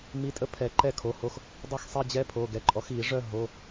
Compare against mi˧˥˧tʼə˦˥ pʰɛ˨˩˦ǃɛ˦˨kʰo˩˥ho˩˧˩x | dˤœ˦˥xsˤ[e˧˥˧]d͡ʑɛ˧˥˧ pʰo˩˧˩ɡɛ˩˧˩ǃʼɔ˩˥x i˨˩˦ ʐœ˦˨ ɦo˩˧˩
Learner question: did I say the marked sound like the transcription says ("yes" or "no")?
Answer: yes